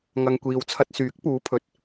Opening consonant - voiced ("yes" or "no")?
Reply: yes